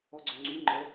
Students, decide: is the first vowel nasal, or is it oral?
oral